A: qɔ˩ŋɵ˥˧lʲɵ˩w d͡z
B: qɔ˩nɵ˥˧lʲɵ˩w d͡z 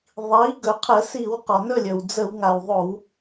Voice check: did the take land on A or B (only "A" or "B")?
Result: B